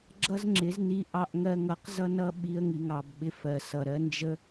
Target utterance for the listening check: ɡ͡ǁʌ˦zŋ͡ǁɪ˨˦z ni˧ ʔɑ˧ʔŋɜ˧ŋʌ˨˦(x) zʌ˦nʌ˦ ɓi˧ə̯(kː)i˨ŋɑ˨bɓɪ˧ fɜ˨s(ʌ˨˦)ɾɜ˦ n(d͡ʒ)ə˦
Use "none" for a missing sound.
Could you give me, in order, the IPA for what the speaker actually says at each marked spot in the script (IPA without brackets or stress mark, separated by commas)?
q, ŋ, ʌ˨, d͡ʒ